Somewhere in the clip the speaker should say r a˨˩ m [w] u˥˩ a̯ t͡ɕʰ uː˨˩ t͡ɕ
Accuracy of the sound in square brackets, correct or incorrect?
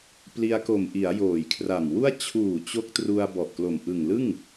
correct